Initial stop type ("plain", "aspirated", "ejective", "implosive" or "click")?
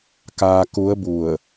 plain